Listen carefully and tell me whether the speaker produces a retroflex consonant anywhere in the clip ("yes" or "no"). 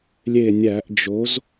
no